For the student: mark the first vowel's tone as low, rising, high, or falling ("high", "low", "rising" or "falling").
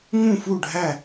falling